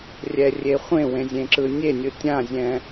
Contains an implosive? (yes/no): no